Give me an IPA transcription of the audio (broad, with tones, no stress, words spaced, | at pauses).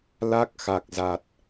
la˦˥k̚xa˨˩k̚ za˨˩t̚